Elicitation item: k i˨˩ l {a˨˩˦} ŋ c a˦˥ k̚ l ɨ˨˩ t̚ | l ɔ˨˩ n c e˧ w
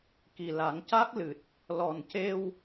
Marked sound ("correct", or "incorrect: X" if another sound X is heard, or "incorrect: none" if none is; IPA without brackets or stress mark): correct